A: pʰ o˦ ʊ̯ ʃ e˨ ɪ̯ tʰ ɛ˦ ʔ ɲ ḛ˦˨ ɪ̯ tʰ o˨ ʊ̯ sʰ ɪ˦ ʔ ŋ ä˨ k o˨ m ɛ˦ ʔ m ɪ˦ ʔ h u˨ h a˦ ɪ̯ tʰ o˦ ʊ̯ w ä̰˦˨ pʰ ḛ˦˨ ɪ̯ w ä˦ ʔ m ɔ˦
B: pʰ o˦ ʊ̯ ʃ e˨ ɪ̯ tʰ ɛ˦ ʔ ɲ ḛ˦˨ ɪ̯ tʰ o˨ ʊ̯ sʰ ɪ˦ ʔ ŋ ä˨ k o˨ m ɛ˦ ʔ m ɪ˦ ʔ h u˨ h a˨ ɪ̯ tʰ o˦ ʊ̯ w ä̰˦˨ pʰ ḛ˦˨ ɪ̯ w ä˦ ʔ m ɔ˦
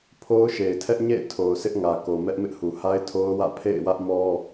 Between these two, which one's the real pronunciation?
A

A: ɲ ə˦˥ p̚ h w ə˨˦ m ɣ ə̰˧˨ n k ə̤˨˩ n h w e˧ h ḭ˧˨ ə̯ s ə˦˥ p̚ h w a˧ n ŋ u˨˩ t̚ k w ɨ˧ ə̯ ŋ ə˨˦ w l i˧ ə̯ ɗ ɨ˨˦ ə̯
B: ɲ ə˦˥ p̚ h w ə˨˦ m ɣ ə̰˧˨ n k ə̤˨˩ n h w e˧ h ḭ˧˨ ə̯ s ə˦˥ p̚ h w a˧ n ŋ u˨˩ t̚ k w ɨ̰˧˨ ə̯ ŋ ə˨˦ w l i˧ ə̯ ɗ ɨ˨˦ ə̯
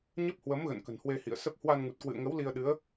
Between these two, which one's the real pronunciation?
B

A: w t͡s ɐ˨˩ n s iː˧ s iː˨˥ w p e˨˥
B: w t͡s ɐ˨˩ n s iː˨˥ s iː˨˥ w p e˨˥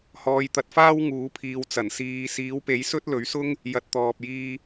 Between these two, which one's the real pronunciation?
A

